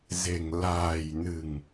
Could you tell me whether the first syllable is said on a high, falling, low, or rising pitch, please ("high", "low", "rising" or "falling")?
low